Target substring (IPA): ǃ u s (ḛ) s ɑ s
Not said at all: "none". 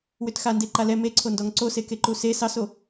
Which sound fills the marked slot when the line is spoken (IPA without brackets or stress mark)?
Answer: e